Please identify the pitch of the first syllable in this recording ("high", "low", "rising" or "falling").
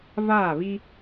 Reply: falling